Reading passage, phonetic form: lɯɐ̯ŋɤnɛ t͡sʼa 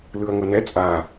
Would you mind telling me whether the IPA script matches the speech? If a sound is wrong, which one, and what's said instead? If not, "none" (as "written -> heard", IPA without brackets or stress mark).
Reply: none